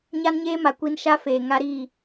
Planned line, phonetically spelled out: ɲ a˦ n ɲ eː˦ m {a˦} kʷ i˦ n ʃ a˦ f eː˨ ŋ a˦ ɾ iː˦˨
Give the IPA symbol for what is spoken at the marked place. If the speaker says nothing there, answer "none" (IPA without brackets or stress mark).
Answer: a˨